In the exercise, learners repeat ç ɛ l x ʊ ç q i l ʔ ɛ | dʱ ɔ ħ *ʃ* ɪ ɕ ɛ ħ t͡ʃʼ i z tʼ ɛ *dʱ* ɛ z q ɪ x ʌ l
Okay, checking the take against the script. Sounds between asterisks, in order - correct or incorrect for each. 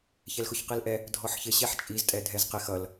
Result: incorrect: ç, correct

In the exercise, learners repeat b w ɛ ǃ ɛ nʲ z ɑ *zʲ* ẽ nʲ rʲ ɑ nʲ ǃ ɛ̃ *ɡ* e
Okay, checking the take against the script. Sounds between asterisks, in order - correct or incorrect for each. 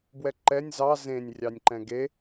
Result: incorrect: z, correct

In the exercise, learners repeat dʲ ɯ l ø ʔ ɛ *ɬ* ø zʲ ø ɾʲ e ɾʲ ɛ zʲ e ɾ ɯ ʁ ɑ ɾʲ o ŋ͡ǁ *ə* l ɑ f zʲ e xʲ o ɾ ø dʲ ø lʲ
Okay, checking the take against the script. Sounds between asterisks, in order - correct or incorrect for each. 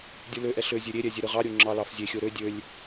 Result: correct, incorrect: ɑ

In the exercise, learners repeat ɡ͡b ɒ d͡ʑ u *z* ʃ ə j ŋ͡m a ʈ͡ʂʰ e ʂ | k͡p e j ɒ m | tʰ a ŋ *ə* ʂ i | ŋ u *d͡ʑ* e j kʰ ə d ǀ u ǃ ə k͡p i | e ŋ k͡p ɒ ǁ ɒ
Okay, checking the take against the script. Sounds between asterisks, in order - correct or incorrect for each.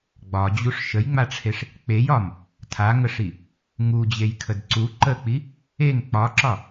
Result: incorrect: ʂ, correct, correct

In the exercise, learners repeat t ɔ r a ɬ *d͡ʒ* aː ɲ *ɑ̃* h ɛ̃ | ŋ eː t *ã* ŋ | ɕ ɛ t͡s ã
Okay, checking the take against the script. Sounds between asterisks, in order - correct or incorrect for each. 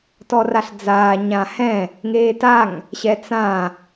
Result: incorrect: d͡z, incorrect: ã, incorrect: a

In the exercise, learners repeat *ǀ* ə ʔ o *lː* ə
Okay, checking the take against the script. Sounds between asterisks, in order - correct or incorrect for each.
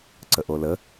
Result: correct, incorrect: l

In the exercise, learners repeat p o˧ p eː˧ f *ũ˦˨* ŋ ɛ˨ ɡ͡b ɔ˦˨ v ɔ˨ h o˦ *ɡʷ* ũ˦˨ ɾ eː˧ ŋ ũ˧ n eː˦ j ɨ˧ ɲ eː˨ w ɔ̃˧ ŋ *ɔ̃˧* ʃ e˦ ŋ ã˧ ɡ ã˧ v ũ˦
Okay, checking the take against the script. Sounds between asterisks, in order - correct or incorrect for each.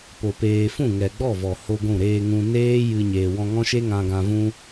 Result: correct, correct, incorrect: ɔ̃˦

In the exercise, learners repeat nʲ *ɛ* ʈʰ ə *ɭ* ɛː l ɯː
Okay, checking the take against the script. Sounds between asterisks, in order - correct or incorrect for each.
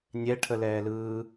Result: correct, incorrect: l

